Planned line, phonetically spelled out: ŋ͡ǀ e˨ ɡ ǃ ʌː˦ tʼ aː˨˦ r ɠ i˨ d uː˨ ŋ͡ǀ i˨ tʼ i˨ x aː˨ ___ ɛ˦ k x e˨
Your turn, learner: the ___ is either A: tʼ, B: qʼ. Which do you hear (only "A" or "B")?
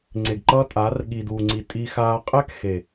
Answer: B